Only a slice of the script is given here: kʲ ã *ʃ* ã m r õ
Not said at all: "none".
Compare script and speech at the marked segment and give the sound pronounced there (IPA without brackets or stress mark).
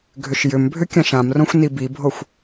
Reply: ʃ